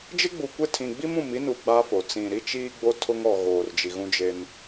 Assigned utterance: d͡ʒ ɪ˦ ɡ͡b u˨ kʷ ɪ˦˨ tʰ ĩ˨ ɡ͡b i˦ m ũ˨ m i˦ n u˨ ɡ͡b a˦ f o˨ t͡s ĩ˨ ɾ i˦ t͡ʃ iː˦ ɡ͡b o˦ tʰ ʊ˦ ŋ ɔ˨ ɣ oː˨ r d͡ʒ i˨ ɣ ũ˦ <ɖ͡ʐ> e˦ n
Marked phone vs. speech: incorrect: d͡ʒ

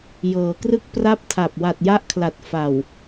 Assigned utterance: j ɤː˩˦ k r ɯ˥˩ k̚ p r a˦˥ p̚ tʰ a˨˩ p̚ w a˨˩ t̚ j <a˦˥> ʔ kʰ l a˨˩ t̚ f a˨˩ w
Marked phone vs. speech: correct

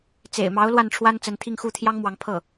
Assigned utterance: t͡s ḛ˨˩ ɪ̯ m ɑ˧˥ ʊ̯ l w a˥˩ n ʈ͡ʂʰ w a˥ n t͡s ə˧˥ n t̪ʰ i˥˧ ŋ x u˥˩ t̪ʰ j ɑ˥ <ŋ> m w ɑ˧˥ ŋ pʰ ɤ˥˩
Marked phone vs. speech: correct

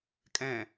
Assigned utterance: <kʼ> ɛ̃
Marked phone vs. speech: correct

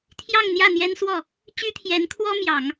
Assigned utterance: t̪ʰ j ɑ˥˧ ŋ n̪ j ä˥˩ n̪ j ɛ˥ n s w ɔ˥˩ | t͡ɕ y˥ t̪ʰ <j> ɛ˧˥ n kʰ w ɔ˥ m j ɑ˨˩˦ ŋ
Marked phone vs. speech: correct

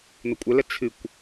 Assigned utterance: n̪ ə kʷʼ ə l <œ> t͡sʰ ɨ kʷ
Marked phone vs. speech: incorrect: ə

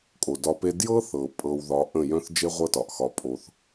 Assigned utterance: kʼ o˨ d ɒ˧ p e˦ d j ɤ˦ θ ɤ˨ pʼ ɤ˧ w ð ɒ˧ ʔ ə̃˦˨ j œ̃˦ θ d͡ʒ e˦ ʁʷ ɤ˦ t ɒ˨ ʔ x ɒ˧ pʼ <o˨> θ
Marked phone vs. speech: incorrect: o˧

